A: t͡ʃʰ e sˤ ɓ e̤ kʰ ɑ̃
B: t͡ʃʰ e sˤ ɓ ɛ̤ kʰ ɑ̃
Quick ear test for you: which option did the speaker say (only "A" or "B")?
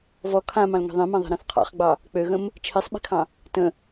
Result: A